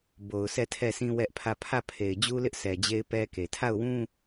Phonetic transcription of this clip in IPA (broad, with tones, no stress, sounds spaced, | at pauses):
b o˨ ʊ̯ sʰ ɛ˦˨ tʰ ɛ˦˨ sʰ ĩ˦ w ɛ˦ ʔ pʰ ä˦˨ pʰ ä˦˨ pʰ e˨ ɪ̯ d͡ʑ u˦ l ɪ˦ ʔ s ɛ˨ d͡ʑ e˦ ɪ̯ p ɛ˦ k e˨ tʰ a˦˨ ʊ̯ w ũ˦